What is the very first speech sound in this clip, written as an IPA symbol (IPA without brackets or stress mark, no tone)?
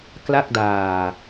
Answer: k